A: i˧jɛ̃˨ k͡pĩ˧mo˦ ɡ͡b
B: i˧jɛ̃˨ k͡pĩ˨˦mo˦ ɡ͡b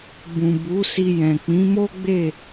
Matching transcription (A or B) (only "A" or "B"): B